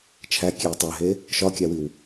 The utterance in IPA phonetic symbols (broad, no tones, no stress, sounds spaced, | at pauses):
t͡ʃʰ æ kʲ e w tˤ æ ɦ e | ʃ ɒ kʲ æ w i w